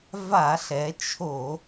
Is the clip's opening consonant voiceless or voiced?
voiced